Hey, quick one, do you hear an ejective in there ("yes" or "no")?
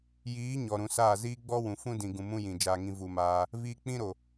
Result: no